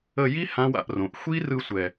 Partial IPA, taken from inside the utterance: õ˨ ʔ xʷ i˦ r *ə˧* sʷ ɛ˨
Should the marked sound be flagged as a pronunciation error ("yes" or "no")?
yes